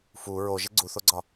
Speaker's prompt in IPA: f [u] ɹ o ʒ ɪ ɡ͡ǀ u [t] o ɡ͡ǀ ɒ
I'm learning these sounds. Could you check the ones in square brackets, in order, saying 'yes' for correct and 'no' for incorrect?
yes, no

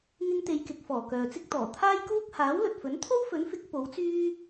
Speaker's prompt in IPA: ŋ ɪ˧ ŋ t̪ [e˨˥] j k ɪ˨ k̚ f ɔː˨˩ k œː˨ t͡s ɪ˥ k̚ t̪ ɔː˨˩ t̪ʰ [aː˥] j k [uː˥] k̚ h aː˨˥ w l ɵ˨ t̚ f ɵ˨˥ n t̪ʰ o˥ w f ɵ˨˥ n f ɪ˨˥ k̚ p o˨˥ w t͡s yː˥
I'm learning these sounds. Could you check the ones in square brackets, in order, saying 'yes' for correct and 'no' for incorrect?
no, yes, yes

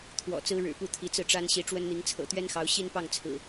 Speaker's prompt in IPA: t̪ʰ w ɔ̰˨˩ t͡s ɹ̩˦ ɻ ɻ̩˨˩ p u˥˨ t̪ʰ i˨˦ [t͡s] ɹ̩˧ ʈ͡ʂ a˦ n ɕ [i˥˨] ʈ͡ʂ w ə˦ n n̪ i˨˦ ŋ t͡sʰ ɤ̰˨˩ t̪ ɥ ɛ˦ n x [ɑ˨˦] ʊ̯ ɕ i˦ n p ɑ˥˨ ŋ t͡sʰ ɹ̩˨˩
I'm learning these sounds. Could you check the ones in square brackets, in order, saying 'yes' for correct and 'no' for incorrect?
yes, no, yes

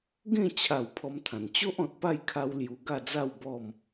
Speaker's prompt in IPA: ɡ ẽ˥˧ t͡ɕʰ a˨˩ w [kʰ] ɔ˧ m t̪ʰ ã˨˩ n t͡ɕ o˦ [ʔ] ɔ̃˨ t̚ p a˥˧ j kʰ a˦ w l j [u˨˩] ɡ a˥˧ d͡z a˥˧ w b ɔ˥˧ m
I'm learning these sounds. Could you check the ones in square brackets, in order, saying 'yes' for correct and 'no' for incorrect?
no, yes, no

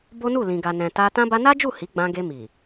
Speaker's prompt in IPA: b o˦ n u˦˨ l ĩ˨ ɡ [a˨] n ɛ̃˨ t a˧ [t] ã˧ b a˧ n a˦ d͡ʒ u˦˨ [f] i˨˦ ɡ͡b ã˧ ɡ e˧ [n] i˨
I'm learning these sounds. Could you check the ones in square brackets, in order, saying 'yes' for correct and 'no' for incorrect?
yes, yes, no, no

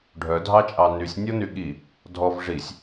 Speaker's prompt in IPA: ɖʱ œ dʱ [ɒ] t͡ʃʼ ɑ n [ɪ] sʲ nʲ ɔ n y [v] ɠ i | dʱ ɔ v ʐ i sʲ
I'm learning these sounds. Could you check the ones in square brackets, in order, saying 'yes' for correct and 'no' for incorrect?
no, no, no

